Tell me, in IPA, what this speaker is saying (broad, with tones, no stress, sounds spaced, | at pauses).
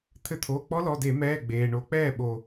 t̪ʰ ɘ˧˩ t̪ʰ oː˩˧˩ k͡p ɔ˦ l ɔ˩˧˩ d e˧˩˧ m ɛː˩˧˩ ɡ͡b eː˩ ɳ o˧˩˧ k͡p ɛː˧˩ ɓ o˩